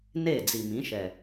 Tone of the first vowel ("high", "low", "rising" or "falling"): falling